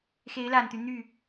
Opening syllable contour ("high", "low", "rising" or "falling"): rising